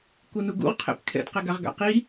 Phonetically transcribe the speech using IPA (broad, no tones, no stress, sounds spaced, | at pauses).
k u n u ɡ ṵ ʁ qʰ ɛ̰ p kʰ ɛ̰ d q ɛ ɡ a ʁ ɡ a̰ q i